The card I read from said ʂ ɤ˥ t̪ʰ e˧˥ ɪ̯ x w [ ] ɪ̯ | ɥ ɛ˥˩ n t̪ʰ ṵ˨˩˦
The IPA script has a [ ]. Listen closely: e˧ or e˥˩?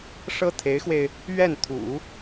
e˧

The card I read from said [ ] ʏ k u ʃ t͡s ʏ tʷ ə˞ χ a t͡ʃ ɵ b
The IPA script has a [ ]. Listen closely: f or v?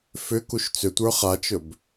f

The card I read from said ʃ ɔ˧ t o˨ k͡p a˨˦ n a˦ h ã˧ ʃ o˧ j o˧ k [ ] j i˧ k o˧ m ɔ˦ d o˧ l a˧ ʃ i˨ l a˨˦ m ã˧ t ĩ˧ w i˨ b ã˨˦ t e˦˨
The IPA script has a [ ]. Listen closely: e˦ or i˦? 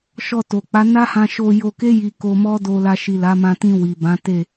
e˦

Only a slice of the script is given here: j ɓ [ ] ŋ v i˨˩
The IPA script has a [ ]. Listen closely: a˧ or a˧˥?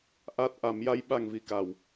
a˧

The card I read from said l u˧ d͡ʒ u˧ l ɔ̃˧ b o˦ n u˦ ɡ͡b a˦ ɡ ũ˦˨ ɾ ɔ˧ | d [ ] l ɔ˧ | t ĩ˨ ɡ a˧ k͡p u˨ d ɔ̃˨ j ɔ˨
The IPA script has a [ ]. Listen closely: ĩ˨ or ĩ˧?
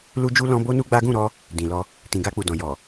ĩ˨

